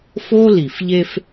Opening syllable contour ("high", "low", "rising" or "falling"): high